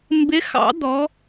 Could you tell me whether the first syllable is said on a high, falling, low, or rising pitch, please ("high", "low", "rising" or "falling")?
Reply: rising